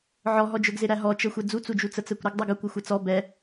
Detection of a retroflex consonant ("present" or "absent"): absent